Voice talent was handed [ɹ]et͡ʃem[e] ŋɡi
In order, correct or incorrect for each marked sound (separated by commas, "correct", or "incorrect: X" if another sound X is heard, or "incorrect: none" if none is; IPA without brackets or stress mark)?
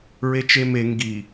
correct, correct